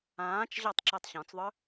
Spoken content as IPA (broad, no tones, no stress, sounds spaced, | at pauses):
ãː t͡ʃ ʑ ɒ tˤ ǁ ɛ tˤ ɕ ɔ̃ t͡s ðˤ œ